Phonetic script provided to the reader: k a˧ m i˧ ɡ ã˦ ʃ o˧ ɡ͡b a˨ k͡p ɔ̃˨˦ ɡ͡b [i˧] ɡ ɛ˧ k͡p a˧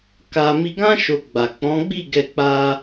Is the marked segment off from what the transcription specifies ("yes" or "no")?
yes